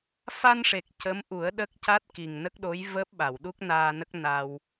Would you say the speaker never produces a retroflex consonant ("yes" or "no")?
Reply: no